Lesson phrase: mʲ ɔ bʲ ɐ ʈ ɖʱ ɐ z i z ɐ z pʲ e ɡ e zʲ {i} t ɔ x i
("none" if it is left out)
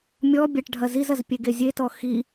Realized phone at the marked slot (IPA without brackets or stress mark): e